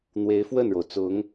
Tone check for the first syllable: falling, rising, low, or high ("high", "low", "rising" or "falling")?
rising